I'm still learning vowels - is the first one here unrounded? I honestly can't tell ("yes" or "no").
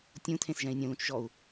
no